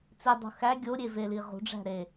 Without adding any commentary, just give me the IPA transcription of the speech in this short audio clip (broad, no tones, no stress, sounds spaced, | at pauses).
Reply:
t͡s i dˤ ṳ x æ ɡʲ o ɾʲ e v e l i ʁ ṳ ɖ͡ʐ æ̤ ɾ e